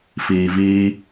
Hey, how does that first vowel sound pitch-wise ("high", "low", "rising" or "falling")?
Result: low